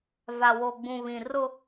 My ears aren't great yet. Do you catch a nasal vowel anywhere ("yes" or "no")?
yes